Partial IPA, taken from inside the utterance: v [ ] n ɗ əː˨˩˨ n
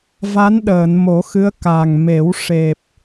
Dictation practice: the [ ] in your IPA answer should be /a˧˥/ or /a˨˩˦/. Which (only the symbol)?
a˧˥